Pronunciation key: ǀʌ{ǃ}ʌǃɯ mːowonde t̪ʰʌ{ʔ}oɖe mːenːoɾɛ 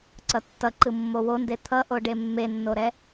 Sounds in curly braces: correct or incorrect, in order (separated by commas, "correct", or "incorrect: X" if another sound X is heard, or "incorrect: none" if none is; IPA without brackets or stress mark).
incorrect: tː, correct